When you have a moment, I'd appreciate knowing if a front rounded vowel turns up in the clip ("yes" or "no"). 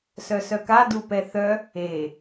yes